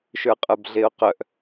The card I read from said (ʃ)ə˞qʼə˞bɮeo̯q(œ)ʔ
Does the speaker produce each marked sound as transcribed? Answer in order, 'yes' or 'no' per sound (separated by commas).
yes, yes